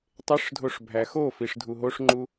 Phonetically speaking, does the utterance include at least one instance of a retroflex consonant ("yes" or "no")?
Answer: yes